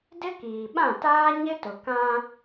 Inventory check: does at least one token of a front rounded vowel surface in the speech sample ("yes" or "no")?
no